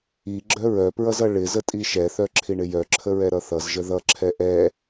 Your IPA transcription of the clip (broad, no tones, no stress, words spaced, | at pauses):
iɡ͡ǁœ ɹœpɹʌzʌ ɭɪzətʼi ʃɛθœǁʰiɳɪ jœǁʰəɹɛɾʌ θʌzʒə ðʌǁʰɛ ʔɛ